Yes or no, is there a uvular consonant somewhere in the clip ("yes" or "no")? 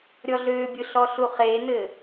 yes